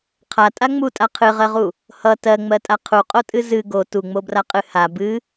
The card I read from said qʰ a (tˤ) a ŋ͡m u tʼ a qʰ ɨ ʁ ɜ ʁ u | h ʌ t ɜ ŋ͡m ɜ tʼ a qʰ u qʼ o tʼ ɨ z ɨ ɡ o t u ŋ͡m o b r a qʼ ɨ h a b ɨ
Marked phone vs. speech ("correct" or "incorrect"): incorrect